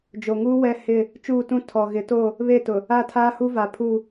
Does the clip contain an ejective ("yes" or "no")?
no